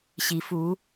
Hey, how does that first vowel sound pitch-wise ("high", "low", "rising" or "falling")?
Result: rising